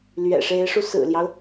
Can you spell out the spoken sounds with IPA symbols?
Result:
l ɥ ɛ̰˨˩ ʂ e˧˥ ɪ̯ ʂ u˧ s ɹ̩˨˩ l j ɑ˦ ʊ̯

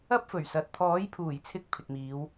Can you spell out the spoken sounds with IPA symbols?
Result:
ɐ˥ p̚ f ɵ˨˩ ɥ s ɐ˨ t̚ t̪ʰ ɔː˨˥ j pʰ uː˨˩ j t͡sʰ ɪ˧ k̚ pʰ ɪ˨ k̚ m iː˨˧ w

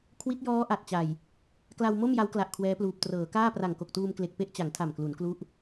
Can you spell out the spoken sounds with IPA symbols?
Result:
kʰ w i˦˥ t̚ j ɔː˦˥ ʔ a˨˩ t̚ t͡ɕ a˨˩ j | k l a˧ w m o˥˩ m j a˦˥ w k l a˨˩ ʔ kʰ w ɛː˦˥ p l uː˨˩ p̚ t r ɤː˩˦ k aː˥˩ p r a˨˩ ŋ k o˨˩ k̚ t uː˧ m k l e˨˩ k̚ p e˥˩ ʔ t͡ɕ a˩˦ ŋ tʰ a˨˩ m k l u˩˦ n k l u˦˥ ʔ

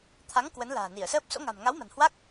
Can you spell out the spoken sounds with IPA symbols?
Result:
t̪ʰ a˨˦ ŋ k w ə˨˦ n l a̤ː˨˩ n i˧˩ ə̯ s əː˦˥ p̚ s o̰˧˥ ŋ a̤˨˩ m ŋ a˨˦ w m a̤˨˩ n h w a˦˥ k̚

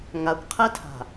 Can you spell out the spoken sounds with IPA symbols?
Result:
ŋ a kʷ qʰ ɛ tʰ a̤

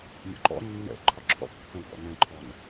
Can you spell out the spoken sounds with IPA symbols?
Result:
mʲ ɔ̰ ǃ ɔ̰ nː ɛ̰ ǃʰ ɒ ǁʰ ɔ̰ b pː ɛ̃ w b ɔ̰ n ɛ̃ ǃʰ ɔ n

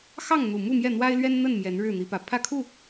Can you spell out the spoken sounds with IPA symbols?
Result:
x ɑ˥˨ ŋ n̪ u˨˩ m u˥˨ m j ɛ˥˨ n̪ w a˦ ɪ̯ l ɥ ɛ˦ n n̪ ə˥˨ n m j ɛ˨˦ n ɻ ɻ̩˥˨ n̪ i˨˦ p ä˨˩ pʰ ä˥˨ kʰ u˥˨

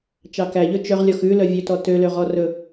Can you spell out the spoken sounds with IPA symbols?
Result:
t͡ʃ ɑ k æ ʎ ɵ t͡ʃ œ ʁ lʲ ɔ x ʉ l œ vʲ ø t ɔ t ø l ø ʁ ɔ r ɵ

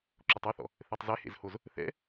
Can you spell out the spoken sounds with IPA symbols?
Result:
ǁ o tˤ o θ ɔ̰ | θ e tˤ z ɛ h ḛ z h o z | θ ɛ̰

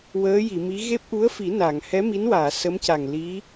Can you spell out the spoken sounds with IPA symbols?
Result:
w əː˧˥ j i˨˩˨ m i˧˥ ɣ e˦˥ p̚ ʔ u˧˥ ə̯ f i˨˩˦ n a˨˩˨ ŋ h ɛ˧˥ m i˧˥ n w aː˨˩˨ s ə˧˥ m c a˨˩ ŋ l i˧˥

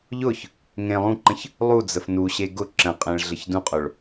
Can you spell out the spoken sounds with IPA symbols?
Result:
ʎ ʊ ç | ŋ ẽ lˠ ũ ǃ ə̃ ç | lˠ u d͡z ə f n u ɕ e ɡ ʊ ǁ ə̃ qʼ ẽ ɭ ɮ ə ç d ũ qʼ ʊ ɭ

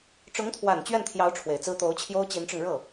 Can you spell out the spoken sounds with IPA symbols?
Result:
ʈ͡ʂ ʊ˧˥ ŋ t̪ʰ w a˨˩ n t͡ɕ ɥ ɛ˥˩ n t̪ʰ j ɑ˧˥ ʊ̯ ʈ͡ʂʰ w e˨˩ ɪ̯ t͡s ɹ̩˥ t̪ o˧˥ ʊ̯ t͡ɕʰ j o˥ ʊ̯ t͡ɕ i˧˥ n ʈ͡ʂ ʊ˧ ŋ ɻ ɤ˥˩

